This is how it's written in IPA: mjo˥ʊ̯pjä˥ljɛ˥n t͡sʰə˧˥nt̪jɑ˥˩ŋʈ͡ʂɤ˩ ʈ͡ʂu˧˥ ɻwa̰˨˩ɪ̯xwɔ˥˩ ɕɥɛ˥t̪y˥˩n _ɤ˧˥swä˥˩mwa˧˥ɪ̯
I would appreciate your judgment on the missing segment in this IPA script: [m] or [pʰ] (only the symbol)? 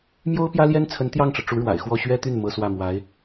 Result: m